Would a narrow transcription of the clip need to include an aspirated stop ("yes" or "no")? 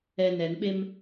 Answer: no